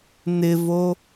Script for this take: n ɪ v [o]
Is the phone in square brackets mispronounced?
no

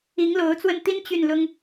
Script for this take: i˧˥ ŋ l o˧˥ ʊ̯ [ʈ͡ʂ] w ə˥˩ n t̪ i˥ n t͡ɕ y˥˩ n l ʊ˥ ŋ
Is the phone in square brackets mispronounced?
yes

